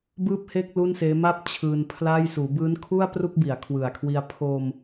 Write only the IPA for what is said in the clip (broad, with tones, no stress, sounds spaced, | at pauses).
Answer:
b ɯː˥˩ p̚ h eː˥˩ k̚ l u˥˩ n s eː˦˥ m a˥˩ p̚ t͡ɕʰ ɯː˧ n pʰ l aː˥˩ j s uː˩˦ b ɯː˦˥ n kʰ u˥˩ a̯ p r u˥˩ k̚ b i˩˦ a̯ kʰ w ɯ˨˩ a̯ kʰ w i˧ a̯ pʰ o˧ m